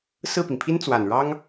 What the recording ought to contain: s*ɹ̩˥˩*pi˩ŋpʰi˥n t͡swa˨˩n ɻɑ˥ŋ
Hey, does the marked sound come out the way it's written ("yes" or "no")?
yes